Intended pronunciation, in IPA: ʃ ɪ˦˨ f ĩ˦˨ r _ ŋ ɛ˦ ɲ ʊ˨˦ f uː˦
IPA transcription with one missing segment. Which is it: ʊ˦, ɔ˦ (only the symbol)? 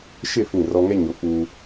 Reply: ɔ˦